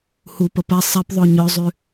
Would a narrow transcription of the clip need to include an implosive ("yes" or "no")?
no